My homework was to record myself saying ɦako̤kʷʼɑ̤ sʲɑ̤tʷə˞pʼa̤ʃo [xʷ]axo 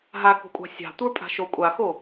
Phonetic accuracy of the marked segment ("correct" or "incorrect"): incorrect